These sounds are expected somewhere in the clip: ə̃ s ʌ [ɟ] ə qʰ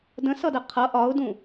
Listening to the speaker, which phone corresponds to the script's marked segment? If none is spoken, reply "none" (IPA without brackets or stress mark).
d